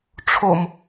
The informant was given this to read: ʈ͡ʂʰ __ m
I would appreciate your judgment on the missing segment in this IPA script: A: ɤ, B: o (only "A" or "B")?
B